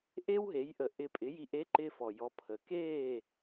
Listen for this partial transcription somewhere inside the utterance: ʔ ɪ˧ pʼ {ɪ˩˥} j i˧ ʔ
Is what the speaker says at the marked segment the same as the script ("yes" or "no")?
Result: yes